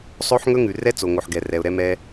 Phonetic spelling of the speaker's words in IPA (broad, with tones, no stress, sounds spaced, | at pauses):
sˤ o˦ ħ ŋ ɵ˦ ŋ ʉ˨ r ɛ˦ t͡s o˨ ŋ o˨ ħ ɡ ɛ˨ r ɛ˨ ʊ̯ ɾ ɛ˦ m ɛ˦